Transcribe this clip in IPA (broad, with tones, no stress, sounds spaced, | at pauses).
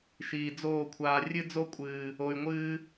ʃ iː˨ d͡z oː˦˨ kʷʰ aː˧ rʲ ɨ˦ d͡z o˦ kʷʼ ɨː˨ | o˧ y̯ ŋʷ ɨː˦